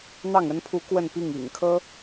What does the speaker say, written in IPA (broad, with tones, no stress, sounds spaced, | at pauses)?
n̪ ɑ˥˩ ŋ ə˥ n pʰ u˧˥ k w ə˥˧ n p i˥˩ ŋ ḭ˨˩ ŋ kʰ ɤ˥